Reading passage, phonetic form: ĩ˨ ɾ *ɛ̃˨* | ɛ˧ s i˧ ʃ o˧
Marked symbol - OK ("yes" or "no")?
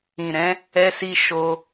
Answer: no